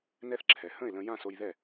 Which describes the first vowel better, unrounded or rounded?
unrounded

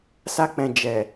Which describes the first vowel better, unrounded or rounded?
unrounded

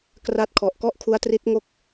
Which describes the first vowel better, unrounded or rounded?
unrounded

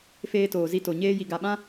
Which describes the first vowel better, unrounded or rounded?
unrounded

